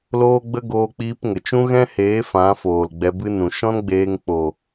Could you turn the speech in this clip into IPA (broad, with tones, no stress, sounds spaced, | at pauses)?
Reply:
l oː˦ ɡ͡b ə˦ ɡ oː˦ k͡p iː˦ p ŋ ə˨ t͡ʃ ũ˦ ɣ ɛ̃˦ h eː˨˦ f ã˨˦ f oː˨ l ɡ͡b ɛ˧ b ɨ˦ n ũ˨ ʃ ɔ̃˦ n ɡ͡b eː˧ ŋ k͡p o˨